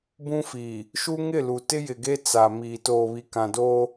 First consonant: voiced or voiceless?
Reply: voiced